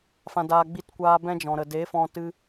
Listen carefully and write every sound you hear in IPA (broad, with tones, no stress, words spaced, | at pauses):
fã˧daː˧ ɡ͡bi˧tkʷaː˧ bɛ̃˦d͡ʒɔ̃˨ɾə˨ de˨˦fɔ̃˧ tɨ˧